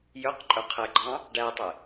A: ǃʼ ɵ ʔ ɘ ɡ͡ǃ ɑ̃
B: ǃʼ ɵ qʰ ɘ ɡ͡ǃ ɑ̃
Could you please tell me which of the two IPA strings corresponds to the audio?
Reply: B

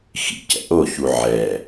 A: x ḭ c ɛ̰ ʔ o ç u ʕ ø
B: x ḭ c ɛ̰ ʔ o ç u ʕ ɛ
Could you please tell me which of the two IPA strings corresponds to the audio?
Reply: B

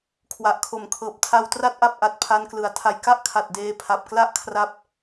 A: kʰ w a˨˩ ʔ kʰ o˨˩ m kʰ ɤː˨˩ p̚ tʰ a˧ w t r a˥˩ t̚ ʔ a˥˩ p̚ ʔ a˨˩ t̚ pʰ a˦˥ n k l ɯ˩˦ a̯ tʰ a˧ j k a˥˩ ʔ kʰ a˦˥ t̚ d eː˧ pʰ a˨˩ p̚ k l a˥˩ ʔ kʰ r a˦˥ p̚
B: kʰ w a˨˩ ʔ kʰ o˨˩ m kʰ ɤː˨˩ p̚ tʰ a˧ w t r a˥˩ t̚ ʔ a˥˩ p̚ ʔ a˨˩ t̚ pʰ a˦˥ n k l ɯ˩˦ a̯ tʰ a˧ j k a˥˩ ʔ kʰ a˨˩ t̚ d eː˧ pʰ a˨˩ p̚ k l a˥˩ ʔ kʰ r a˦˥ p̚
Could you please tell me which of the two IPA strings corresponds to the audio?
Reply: B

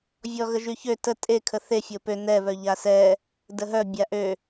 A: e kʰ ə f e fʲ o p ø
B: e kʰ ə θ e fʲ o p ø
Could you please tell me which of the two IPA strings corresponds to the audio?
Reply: B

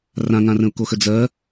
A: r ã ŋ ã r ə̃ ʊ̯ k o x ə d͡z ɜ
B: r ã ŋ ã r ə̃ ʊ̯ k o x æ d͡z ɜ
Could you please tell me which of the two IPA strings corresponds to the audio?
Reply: A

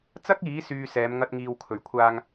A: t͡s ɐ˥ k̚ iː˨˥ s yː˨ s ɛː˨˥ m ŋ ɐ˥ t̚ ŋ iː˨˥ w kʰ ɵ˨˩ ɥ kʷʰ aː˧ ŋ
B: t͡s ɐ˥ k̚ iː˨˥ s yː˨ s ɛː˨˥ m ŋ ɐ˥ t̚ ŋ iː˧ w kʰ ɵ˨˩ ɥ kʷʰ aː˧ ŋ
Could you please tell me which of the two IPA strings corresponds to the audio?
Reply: B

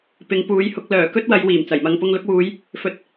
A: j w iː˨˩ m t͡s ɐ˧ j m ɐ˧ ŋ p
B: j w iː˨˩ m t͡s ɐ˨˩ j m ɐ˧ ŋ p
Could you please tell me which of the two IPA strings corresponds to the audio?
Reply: B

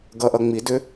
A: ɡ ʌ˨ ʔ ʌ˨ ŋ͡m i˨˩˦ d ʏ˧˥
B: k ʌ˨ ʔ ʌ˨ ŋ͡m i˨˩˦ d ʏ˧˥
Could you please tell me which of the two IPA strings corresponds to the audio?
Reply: A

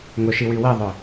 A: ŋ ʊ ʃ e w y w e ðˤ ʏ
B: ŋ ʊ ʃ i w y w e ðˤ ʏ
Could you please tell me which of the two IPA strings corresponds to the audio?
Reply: B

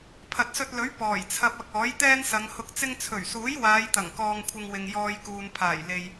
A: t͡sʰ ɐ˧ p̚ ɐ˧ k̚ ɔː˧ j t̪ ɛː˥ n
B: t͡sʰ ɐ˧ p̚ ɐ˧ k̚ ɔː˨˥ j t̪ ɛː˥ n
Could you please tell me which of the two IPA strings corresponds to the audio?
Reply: B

